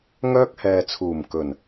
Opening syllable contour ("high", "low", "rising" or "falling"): high